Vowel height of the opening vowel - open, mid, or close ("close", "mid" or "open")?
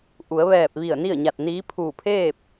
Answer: close